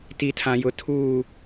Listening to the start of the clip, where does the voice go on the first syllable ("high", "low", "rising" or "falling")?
low